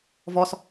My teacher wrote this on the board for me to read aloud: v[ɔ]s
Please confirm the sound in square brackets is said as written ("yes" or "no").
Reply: yes